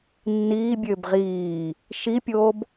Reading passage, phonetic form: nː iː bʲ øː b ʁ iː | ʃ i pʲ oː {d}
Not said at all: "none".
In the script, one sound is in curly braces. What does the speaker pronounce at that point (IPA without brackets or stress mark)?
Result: b